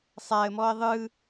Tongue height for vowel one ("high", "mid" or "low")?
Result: low